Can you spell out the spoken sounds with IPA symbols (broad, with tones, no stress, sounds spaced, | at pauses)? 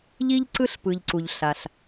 ʎ i˥ ʎ ǀ ɯ˥ ɬ p ɯ˩ ʎ ǀ u˩ ʎ ɬ a˩ ɬ